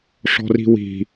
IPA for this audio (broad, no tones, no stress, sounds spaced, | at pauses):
ʂ ɔ̤ r i̤ w i̤